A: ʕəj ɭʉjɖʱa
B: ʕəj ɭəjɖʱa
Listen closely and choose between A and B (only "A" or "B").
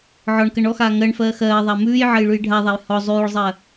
A